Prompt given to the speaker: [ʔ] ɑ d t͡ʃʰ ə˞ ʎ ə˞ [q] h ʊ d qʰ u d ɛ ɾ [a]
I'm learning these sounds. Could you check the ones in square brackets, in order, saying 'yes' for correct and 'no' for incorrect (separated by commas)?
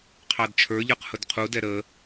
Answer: no, yes, no